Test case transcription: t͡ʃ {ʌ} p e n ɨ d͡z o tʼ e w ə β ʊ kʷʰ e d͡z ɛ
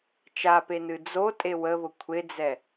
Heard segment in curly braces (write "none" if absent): a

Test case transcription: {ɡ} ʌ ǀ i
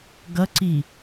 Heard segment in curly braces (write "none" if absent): ɡ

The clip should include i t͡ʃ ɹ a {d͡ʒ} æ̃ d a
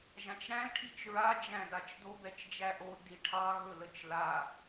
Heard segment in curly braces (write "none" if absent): d͡ʒ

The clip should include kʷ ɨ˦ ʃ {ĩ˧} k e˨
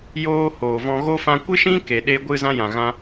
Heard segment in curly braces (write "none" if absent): ĩ˦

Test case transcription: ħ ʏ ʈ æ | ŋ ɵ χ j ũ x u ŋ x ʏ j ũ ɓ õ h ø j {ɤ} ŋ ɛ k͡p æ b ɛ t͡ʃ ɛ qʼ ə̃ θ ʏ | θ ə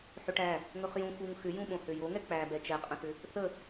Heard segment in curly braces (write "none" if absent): o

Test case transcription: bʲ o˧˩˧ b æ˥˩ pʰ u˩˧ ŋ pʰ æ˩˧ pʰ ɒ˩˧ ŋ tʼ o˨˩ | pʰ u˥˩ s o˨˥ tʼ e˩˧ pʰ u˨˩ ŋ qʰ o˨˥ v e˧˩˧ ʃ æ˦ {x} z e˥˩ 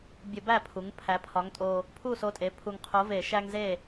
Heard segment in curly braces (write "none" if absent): ŋ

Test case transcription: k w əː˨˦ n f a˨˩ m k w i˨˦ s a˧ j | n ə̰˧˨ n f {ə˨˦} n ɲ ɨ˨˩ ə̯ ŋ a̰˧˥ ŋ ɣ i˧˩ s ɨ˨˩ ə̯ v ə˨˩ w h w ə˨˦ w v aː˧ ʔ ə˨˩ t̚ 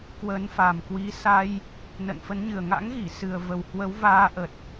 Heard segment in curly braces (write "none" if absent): ə˨˦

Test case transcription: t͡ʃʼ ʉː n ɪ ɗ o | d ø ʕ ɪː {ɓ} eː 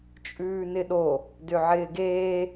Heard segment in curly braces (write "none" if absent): ɡ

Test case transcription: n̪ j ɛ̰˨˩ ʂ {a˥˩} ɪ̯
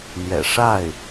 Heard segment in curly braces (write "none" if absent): a˥˩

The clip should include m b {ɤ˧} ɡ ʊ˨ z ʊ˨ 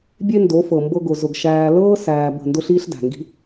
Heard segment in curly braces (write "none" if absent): ɤ˧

